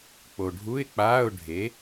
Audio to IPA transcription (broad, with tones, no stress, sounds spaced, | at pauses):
k͡p o˨ ɖʱ u˧˥˧ ɪ̯ k͡p aː˧˥˧ ʊ̯ ɖʱ e˨˥